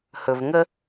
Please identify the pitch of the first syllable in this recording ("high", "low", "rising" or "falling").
low